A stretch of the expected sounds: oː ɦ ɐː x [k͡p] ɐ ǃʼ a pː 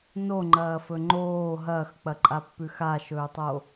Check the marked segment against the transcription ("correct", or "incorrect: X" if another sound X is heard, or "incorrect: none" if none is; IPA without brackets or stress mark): correct